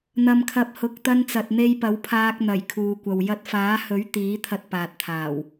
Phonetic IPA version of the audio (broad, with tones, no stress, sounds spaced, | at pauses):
n̪ ɐ˨ m kʰ ɐ˨˥ p̚ h ʊ˨ k̚ t̪ ɐ˧ n t͡s ɐ˨ t̚ n̪ e˧ j p ɐ˨˥ w pʰ aː˧ k̚ n̪ ɐ˨˩ j kʰ uː˨ kʷ ɐ˨ w j ɐ˧ t̚ f aː˨˥ h ɵ˨˥ ɥ t̪ iː˨˥ t̪ʰ ɐ˧ t̚ p aː˨ t̚ t̪ʰ aː˨˩ w